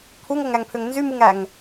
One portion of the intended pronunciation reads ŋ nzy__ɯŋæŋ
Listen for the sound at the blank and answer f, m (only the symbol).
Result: m